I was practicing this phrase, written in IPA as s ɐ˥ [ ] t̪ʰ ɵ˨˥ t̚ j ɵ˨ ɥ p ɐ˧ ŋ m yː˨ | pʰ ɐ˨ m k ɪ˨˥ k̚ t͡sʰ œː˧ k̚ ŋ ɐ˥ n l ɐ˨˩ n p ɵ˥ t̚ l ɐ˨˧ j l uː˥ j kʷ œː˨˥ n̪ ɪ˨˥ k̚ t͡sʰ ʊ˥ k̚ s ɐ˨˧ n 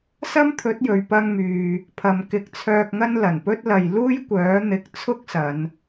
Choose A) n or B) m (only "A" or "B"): B